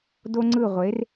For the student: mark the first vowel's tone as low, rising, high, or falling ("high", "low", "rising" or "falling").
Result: high